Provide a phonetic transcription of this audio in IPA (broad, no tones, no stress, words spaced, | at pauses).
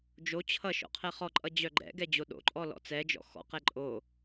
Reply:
d͡ʒo t͡ɕʰʌ ʃɔ̰qʰɛχɔǃʼʌ d͡ʑœɡ͡ǃɛ̰ɡɛ d͡ʑoɗo̰ǃʼɔ lɔ̰t͡sɛd͡ʒɔ̰ xɔ̰qɛ ǃʼo